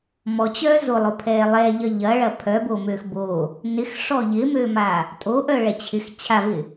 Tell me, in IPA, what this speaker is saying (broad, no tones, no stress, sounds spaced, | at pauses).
m ɔ t͡ɕ œː z o lˠ o pʰ ɛː lˠ ɛ ʎ ɐ ʎ ɐ ɭ ɐ pʰ œ b o m øː x b oː | n ɪ x ʂ ɔ ʎ ɪ m øː m aː | tʼ o ʔ œ ɭ ɛ t͡ɕʰ ɪ x t͡ɕʰ a v ɪ